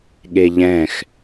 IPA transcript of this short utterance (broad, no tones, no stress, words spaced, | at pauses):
ɠeʎɛ̃x